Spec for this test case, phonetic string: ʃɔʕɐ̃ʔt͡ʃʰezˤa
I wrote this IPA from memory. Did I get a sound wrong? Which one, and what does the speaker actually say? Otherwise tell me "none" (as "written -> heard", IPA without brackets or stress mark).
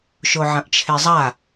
ɔ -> o